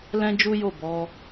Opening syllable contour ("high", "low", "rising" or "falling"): high